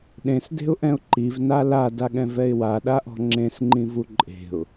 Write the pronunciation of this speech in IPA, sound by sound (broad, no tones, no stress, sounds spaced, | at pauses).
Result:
ɗ ẽ s d e̤ ʊ̯ ʔ ɛ̃ ʊ̯ ǃ i v n a l a d a ɠ ɛ̃ v ɛ ɪ̯ w a ɗ a ʔ ɔ̤ ŋ͡ǁ ẽ s ŋ͡ǃ ĩ v u ǃʼ e̤ ʊ̯